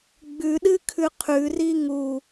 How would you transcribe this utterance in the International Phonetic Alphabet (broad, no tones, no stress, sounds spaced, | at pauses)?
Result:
ɡ͡b ʉ ɗ ɨ kʰ ʉ qʰ ʉ r i ŋ u